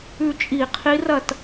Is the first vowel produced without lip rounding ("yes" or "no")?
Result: no